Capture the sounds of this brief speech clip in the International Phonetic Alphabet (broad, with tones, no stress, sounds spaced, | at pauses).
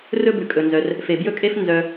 r ɵ˦ b ʉ˩ kʼ ɵ˩ n z œ˩ r | f e˩ b j ɵ˦ kʼ e˦ f n z œ˨